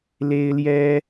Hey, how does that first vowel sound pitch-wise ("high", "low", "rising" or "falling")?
high